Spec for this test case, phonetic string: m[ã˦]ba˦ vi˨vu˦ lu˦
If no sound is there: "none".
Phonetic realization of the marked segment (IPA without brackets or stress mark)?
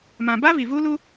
ã˨